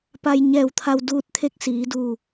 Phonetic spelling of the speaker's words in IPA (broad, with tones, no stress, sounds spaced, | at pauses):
p a˧ j ɲ ɛː˧˩ w t̪ʰ a˧ w d uː˧ t̚ t̪ʰ e˥˨ k̚ s iː˩˧ d uː˧˩